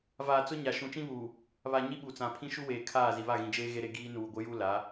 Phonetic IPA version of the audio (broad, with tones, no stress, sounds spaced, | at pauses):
v aː˨ t͡s ʊ˦ ɲ a˨ ʃ ũ˨ t͡ʃ ĩ˦ β uː˨ | β a˨ ɲ i˦ ɓ u˨ t͡s ã˨ pʰ ĩ˦ ʃ u˦ w eː˨ kʰ aː˦˨ z i˨ β a˦˨ ɣ ĩ˨ d͡ʒ eː˦ ɣ e˦ ɾ e˦ ɡ iː˦ n uː˨ ɡʷ ɪ˦ j u˦ l a˨˦